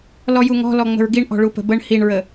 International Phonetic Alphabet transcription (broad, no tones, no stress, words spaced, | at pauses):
lɔjuŋɔ̤ lɔŋ͡mə̤ɹɡiɳ ʔɔ̤ɭupə̤bəɳ hiɳɹə